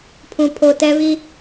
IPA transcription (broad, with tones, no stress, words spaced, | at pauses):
pʰũ˨pʰo˨ tɛ˦βi˦